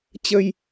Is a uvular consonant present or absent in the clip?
absent